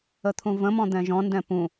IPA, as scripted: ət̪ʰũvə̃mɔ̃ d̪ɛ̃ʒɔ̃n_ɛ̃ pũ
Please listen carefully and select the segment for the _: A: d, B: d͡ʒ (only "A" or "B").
A